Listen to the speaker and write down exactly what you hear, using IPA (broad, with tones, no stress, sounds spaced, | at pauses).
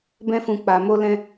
b ɛ̃˦ f ũ˧ k͡p a˧ m o˦ l ɛ̃˦